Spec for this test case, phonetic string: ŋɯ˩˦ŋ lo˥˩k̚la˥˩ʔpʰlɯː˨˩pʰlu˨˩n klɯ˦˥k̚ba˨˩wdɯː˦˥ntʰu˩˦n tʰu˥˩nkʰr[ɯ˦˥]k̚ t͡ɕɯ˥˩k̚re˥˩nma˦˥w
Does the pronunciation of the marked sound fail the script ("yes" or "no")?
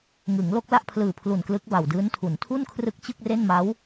no